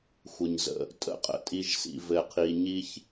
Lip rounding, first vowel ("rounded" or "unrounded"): unrounded